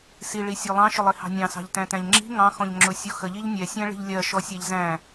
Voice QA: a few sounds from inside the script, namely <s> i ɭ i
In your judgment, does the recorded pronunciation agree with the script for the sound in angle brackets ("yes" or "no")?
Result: yes